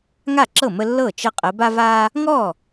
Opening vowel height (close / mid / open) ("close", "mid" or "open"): open